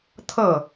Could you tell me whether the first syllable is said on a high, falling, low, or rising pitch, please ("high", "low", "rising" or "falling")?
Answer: falling